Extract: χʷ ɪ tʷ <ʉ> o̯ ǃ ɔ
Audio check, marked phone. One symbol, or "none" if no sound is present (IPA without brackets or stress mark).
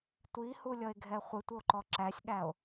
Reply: ə